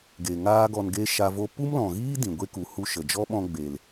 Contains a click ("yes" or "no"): no